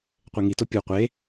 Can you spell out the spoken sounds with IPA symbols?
qʷ e ŋ i t o pʲ u qʷ e

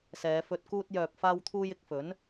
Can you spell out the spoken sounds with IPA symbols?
s ɛː˨˧ f ɵ˧ t̚ k uː˧ t̚ j œː˨ p̚ f aː˧ w t̪ʰ uː˧ j ɪ˨˥ k̚ f ɵ˨˥ n

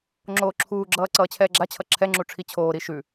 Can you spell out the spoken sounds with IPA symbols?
ŋ͡ǁ oː ǁʰ uː ɡ͡ǁ ʌː ǀ ʌː t͡ɕʰ ɛː ɡ͡ǁ a t͡ɕʰ ʌ ǁʰ ɛ ŋ͡ǁ u ʈ͡ʂʰ i t͡ɕʰ oː ɾ i ʃ ʉ

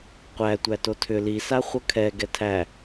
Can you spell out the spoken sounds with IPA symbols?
qʷ æ tʷ æ t o tʰ ʏ l i s a χʷ ʌ kʰ ɛ ɡ ɛ tʰ æ

